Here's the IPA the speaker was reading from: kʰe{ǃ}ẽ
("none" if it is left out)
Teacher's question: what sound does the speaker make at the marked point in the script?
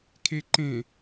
ǃ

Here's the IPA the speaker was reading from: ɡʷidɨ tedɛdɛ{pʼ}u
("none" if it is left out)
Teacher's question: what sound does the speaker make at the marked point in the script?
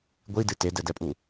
pʼ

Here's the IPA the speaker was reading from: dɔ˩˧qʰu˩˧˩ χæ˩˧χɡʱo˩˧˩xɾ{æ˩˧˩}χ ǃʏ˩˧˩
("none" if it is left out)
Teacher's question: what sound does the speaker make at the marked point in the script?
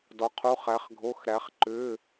æ˩˧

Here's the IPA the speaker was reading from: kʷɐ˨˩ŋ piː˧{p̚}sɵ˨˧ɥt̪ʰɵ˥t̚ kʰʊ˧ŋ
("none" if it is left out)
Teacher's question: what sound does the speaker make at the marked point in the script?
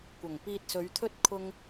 t̚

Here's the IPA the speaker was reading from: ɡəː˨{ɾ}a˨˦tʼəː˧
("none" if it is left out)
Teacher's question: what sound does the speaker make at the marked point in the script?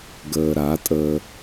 ɾ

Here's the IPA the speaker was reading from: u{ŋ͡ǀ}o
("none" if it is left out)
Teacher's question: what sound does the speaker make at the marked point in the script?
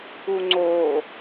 ŋ͡ǀ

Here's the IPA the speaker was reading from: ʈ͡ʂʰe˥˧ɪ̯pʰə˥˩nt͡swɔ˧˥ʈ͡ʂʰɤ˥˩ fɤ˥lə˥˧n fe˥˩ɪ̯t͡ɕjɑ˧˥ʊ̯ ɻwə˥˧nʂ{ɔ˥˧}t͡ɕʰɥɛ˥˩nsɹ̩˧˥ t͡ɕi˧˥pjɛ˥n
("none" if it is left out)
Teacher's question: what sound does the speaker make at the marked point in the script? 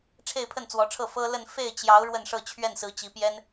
ɤ˥˧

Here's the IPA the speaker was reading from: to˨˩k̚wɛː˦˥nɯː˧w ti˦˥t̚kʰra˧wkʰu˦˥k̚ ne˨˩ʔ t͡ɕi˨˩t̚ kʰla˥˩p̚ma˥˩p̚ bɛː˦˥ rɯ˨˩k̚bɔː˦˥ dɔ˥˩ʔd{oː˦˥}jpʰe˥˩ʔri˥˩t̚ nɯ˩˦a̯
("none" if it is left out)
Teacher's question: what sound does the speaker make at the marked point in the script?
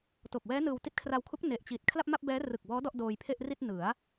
oː˧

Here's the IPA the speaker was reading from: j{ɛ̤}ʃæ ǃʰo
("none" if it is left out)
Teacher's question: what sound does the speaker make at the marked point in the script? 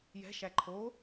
ɛ̤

